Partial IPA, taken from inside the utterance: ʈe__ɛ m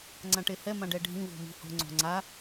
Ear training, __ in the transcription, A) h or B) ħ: A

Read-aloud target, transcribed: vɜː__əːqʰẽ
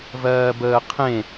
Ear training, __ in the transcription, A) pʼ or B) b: B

